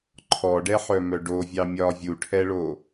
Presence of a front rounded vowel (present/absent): present